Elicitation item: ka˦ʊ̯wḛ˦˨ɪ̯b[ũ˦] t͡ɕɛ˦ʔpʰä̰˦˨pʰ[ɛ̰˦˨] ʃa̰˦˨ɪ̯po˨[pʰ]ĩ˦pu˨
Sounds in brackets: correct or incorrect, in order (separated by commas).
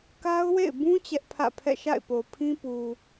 correct, correct, correct